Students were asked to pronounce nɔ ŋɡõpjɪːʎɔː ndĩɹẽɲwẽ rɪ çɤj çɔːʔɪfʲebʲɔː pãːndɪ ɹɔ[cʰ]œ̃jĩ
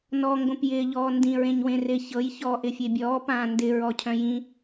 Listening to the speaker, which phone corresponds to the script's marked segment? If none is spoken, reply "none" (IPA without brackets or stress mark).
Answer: cʰ